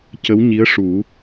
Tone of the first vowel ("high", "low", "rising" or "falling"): rising